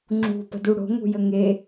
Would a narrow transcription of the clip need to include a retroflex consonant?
yes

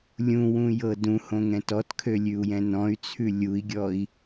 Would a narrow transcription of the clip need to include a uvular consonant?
no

